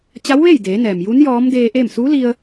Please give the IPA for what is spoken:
t͡ɕ a˧˥ w ʋ e˥˨ j d eː˩˧ n ɛː˩ m j u˧˥ n j ɔː˧˥ m d eː˧ ʔ eː˥˨ m s u˧˥ l i˧ ə̯

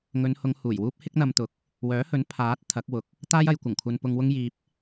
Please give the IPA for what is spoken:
ŋ ɵ˨˧ n h ʊ˨˧ ŋ h uː˨˩ j w uː˥ p̚ h ɪ˥ k̚ n̪ ɐ˧ m t̪ ʊ˨ k̚ | w œː˨˥ h ɵ˨˥ n pʰ aː˨˥ t̚ t̪ʰ ɐ˨˥ k̚ w ʊ˨ k̚ | t̪ aː˥ j ɐ˨ j kʷ ɐ˨˩ ŋ kʷʰ ɐ˨ n p ʊ˧ ŋ w ʊ˥ ŋ j iː˧ p̚

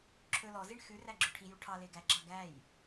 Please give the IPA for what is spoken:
ǁʰ ɵ l ɔ z i ɳ x ʉ r æ ɡ͡ǁ œ ʈʰ i j u ʈʰ ɑ l e ɡ æ ɡ͡ǁ ɑ ɡ æ j

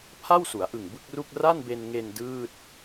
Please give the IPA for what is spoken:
pʰ a˥˩ w s u˩˦ a̯ ʔ ɯ˨˩ ŋ b ɯ˥˩ k̚ r u˥˩ k̚ r a˥˩ n b e˧ n ŋ e˧ n d ɯː˥˩ t̚

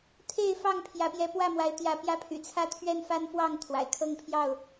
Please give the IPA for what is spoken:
t̪ʰ e˥˨ ɪ̯ f ɑ˥˨ ŋ pʰ j ä˨˦ p j ɛ˨˦ p w ä˥˨ m w a˨˦ ɪ̯ t̪ j ä˨˦ p j ä˦ pʰ y̰˨˩ t͡sʰ ä˦ t̪ʰ ɥ ɛ˦ n f a˦ n f w ɑ˥˨ ŋ t̪ʰ w a̰˨˩ ɪ̯ kʰ ɤ˥˨ ŋ pʰ j ɑ˥˨ ʊ̯

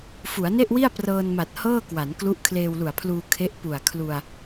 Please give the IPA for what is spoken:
f u˩˦ a̯ n e˥˩ ʔ w i˥˩ a̯ p r ɤː˧ n m a˨˩ t̚ h ɤː˥˩ k w a˩˦ n k l u˦˥ ʔ kʰ l eː˧ w l u˨˩ a̯ pʰ l uː˧ kʰ e˦˥ ʔ p u˨˩ a̯ kʰ l u˧ a̯

